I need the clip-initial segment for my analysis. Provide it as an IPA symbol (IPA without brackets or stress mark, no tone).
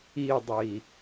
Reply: i